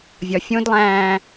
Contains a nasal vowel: yes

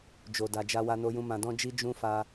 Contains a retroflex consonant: no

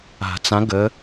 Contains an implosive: no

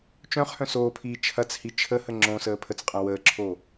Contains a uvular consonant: yes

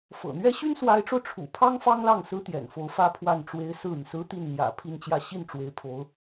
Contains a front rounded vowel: yes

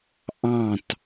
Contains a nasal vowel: yes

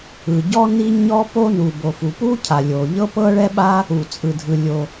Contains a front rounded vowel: no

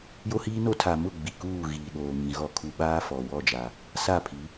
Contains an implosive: yes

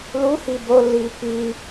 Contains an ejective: no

